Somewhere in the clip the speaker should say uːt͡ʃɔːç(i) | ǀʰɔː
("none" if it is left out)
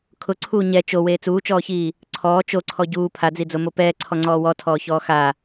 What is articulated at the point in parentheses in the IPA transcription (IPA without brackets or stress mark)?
iː